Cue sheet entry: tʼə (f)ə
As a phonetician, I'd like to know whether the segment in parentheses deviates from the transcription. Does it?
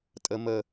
yes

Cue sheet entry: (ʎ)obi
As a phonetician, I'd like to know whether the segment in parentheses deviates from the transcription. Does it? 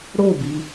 yes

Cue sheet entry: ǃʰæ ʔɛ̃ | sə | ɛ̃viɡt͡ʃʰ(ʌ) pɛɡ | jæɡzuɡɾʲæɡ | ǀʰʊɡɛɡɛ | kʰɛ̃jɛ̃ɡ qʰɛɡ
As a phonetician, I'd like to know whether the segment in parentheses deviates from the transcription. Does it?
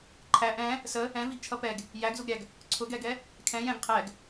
no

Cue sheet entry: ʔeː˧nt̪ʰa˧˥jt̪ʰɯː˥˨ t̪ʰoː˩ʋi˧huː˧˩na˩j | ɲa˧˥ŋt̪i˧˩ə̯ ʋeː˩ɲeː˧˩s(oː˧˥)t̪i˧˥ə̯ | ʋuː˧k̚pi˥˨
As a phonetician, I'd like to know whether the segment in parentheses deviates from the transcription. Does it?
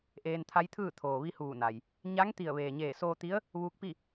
yes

